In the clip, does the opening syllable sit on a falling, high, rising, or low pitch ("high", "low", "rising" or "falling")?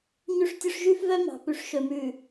high